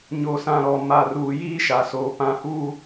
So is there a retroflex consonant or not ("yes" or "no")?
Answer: no